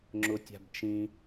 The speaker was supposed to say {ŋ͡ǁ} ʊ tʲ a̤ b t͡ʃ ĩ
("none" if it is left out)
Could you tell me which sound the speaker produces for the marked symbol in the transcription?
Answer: ŋ͡ǁ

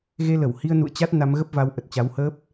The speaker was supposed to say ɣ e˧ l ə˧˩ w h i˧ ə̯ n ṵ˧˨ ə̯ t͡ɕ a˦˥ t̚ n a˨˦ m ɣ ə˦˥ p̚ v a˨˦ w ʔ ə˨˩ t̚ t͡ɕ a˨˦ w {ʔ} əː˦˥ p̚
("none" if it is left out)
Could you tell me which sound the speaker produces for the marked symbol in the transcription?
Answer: h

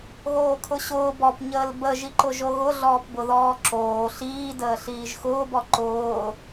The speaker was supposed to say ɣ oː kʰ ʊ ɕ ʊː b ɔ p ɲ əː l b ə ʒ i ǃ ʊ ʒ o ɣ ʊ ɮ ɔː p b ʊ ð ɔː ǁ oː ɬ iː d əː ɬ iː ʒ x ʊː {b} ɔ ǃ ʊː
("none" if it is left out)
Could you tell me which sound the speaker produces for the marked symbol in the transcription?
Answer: b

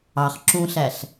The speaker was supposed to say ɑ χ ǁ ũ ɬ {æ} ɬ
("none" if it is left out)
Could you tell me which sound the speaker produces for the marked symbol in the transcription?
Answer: æ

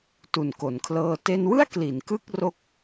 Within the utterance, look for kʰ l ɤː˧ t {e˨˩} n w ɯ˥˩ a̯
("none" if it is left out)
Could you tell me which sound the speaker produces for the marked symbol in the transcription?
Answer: e˧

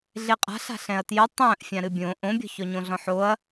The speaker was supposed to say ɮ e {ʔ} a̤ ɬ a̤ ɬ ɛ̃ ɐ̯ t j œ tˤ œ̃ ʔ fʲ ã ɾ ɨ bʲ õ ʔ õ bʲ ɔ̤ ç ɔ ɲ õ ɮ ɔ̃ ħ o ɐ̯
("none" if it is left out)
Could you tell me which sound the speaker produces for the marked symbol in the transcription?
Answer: qʼ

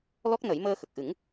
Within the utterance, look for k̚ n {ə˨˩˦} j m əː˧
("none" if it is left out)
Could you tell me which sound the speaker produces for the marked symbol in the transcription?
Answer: ə˨˩˦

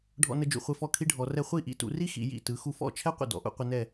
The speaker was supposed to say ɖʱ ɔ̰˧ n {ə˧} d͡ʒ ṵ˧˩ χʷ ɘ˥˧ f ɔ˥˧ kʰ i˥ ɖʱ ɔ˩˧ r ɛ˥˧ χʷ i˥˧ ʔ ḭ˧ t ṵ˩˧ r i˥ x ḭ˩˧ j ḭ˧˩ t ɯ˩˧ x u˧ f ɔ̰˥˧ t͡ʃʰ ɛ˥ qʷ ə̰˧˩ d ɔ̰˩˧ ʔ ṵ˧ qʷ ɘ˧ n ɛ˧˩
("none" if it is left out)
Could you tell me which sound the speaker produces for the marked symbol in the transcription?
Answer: ə˧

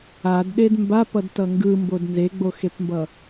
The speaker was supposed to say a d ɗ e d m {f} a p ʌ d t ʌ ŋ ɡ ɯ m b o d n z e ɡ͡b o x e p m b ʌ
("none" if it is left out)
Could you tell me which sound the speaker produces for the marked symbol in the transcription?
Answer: b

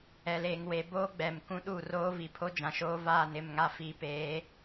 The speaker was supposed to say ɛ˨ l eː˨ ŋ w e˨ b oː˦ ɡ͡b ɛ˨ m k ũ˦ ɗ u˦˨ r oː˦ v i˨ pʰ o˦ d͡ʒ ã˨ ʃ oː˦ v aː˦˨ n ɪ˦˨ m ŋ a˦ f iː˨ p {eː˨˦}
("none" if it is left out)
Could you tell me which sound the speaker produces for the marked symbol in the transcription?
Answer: eː˨˦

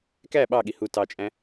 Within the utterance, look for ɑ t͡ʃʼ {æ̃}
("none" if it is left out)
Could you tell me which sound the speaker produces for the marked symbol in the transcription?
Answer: æ̃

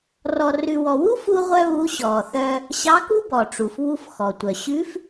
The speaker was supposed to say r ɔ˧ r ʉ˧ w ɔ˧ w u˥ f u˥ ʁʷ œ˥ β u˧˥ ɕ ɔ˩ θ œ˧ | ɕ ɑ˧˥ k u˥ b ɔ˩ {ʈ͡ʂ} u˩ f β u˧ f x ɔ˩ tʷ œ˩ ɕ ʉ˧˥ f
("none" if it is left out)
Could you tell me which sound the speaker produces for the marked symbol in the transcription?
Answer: ʈ͡ʂ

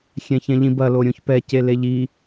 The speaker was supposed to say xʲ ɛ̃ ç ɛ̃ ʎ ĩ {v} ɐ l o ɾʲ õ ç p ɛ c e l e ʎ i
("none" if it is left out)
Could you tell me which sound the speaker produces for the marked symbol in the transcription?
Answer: b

